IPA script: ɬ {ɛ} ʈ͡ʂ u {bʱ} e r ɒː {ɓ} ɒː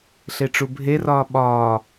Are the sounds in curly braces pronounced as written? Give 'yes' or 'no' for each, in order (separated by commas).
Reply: no, yes, yes